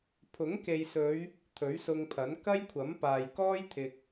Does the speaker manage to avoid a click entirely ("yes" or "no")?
yes